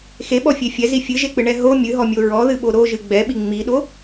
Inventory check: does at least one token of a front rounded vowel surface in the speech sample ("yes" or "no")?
no